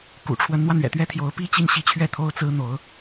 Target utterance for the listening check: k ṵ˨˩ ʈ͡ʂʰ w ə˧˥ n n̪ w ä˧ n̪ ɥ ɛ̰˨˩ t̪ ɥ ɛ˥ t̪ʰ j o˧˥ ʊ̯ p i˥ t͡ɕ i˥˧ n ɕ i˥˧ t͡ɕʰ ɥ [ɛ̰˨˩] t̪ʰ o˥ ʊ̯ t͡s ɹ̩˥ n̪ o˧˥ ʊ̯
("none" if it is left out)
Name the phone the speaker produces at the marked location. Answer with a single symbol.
ɛ˥˩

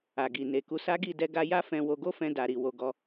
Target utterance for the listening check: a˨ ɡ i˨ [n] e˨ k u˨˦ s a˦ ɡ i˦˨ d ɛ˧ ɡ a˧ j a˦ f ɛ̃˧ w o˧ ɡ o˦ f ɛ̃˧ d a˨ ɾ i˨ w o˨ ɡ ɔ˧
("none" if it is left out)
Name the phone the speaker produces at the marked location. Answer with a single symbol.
n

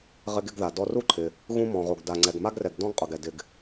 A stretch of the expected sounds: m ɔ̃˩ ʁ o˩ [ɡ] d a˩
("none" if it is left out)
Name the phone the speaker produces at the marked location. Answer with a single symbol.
ɡ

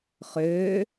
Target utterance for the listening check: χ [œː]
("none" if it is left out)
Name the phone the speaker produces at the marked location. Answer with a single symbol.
øː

